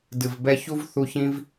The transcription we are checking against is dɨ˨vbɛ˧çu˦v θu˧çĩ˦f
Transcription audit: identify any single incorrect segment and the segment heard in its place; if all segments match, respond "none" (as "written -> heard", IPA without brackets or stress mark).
f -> v